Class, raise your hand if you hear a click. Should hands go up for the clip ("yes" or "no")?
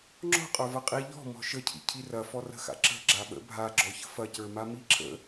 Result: yes